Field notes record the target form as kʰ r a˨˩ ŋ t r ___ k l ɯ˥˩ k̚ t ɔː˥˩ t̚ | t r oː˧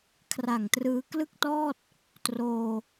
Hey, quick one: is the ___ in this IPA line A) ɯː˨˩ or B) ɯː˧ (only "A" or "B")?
B